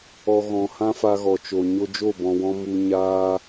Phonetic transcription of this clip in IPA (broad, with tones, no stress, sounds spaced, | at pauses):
ɔ˨ ɣ ɔ̃˨ h ã˦ f a˧ ɣ ɔ˨ t͡ʃ o˨ ɲ o˧ d͡ʒ o˦˨ b ɔ̃˨ w ɔ̃˧ m u˧ ɲ aː˦